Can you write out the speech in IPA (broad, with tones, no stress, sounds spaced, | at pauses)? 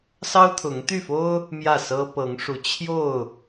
s ɑ˦ ʊ̯ t̪ʰ ʊ˨˦ ŋ t̪ y˥˨ f o˦ ʊ̯ | m j ä˥˨ s ɤ˦ p ɤ˨˦ ŋ ʂ u˨˦ t͡ɕʰ j o˥˨ ʊ̯